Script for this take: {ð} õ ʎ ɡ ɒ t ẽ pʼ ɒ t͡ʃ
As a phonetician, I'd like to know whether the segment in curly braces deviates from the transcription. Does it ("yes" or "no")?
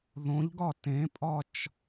no